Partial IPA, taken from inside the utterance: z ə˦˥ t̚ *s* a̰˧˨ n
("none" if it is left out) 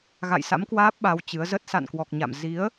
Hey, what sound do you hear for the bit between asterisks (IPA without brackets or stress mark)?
s